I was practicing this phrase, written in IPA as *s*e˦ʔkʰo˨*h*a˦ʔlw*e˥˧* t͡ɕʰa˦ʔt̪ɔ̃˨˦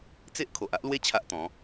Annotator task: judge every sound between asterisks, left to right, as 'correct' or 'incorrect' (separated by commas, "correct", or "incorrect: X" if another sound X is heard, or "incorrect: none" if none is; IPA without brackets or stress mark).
incorrect: t͡s, incorrect: ʔ, incorrect: e˦